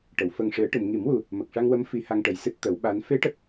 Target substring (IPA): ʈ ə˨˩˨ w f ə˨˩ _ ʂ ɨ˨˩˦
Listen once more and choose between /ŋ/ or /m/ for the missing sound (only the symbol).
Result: ŋ